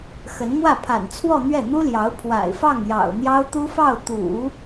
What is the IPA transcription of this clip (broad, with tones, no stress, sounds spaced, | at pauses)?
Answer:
x ə˧˥ n m w ä˥˩ pʰ a̰˨˩ n t͡sʰ w ɔ˥˧ n̪ ɥ ɛ˥˩ n̪ u˥ l j ɑ˧˥ ʊ̯ pʰ w a̰˨˩ ɪ̯ f ɑ˥˩ ŋ j ɑ̰˨˩ ʊ̯ n̪ j ɑ˥ ʊ̯ t̪ u˥ f ɑ˥˩ ʊ̯ t̪ ṵ˨˩˦